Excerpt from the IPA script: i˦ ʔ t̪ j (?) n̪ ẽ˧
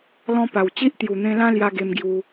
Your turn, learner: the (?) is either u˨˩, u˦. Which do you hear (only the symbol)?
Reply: u˨˩